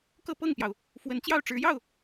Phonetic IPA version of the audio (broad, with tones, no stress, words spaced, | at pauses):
kɤ˥˧pɤ˥˩ŋpjɑ˩ʊ̯ | fwə˧˥nt͡ɕjɑ˥˩ʊ̯ʈ͡ʂɻ̩˧˥jɑ˥˩ʊ̯